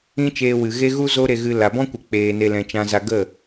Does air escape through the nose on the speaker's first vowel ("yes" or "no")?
yes